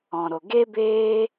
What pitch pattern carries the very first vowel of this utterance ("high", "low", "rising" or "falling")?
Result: low